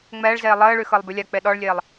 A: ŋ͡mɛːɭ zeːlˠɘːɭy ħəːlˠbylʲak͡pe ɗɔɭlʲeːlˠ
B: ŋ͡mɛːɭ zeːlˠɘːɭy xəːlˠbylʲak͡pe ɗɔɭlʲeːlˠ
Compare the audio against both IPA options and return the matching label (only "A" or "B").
B